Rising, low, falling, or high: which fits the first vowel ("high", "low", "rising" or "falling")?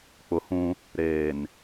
low